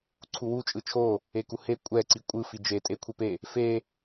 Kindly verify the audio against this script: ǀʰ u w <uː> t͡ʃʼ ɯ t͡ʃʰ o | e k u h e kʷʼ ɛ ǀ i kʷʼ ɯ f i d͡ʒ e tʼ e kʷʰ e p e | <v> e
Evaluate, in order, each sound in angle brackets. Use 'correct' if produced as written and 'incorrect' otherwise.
incorrect, incorrect

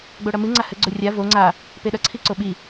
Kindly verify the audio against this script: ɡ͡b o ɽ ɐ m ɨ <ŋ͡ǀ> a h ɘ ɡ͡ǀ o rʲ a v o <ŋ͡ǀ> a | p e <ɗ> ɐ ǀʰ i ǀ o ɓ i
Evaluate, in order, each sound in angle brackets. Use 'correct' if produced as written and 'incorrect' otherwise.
correct, correct, correct

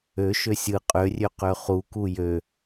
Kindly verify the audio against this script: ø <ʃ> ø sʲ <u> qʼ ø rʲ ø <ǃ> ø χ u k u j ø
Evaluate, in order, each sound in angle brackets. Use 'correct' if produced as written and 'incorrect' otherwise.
correct, incorrect, incorrect

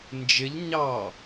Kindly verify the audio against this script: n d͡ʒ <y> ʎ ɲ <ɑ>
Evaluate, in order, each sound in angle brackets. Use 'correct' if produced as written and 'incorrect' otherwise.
incorrect, correct

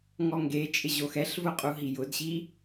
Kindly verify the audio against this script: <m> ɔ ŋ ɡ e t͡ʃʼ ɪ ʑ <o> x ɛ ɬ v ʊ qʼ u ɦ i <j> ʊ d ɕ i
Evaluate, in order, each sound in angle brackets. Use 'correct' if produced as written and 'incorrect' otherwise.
incorrect, correct, correct

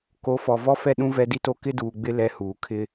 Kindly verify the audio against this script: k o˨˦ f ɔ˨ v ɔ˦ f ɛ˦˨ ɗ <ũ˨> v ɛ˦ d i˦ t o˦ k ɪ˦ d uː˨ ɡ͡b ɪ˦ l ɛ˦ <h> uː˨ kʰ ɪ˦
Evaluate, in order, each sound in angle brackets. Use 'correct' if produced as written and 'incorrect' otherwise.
incorrect, correct

